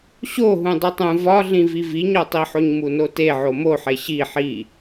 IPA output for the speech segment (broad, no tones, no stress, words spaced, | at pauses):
ɕoɦũ dˤitˤũ vɒɮĩvi viɲɒtˤiħoɲ munote ʕomoħe ɕi ħi